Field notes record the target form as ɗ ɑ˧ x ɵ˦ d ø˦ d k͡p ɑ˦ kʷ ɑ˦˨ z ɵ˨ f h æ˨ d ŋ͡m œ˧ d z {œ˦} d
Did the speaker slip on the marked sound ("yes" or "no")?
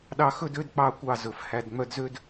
yes